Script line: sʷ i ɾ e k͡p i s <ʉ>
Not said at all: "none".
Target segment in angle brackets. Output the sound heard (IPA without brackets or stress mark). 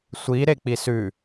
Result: ʉ